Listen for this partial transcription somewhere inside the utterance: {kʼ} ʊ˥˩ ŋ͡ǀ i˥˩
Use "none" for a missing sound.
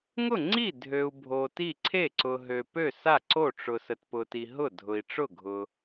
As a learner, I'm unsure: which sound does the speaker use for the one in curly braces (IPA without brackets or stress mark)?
ŋ